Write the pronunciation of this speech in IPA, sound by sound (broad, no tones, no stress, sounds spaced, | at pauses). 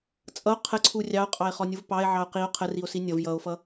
t͡sʼ ʌ o̯ qʰ ə ǀʰ u rʲ ɑ o̯ qʼ ɑ e̯ χ ɔ nʲ u v p ɑ e̯ ʕ ɑ o̯ q i o̯ qʰ ə r i o̯ s i nʲ ʌ v j ʌ o̯ f ʌ